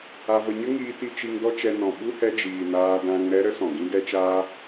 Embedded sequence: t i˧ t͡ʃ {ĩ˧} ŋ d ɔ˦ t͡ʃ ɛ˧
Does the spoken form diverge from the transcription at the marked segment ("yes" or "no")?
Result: yes